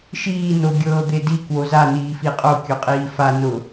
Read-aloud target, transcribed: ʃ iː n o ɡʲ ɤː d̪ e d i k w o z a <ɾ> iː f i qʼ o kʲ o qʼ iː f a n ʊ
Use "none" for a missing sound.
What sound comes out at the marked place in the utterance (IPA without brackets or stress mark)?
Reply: n